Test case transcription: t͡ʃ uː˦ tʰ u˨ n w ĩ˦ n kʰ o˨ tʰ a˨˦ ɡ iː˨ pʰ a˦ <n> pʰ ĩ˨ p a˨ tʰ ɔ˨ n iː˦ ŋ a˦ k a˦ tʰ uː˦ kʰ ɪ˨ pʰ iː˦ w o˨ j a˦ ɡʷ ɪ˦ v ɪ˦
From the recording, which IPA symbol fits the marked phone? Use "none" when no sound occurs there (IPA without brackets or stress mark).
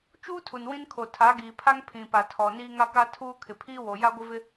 ŋ